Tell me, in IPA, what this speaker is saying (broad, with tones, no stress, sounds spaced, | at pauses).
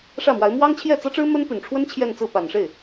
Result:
ʂ ä˥˩ m w a˧˥ ɪ̯ m w ɑ˥ ŋ t͡ɕʰ j ɛ˥˩ t͡s ɤ˥ ʈ͡ʂ ɻ̩˥ m ə˥ n p y˨˩ n ʈ͡ʂʰ w ə˥ n t͡ɕʰ j ɛ˥˧ n t͡s ɹ̩˥˩ p a˨˩ n ʂ e˥˩ ɪ̯